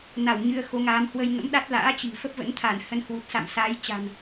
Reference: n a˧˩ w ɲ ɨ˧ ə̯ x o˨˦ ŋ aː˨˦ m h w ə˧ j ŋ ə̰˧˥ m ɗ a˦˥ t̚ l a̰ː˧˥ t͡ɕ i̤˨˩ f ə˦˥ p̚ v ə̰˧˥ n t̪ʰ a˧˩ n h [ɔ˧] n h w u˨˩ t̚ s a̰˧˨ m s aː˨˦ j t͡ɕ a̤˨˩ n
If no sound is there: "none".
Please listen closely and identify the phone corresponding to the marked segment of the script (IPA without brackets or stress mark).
ə˧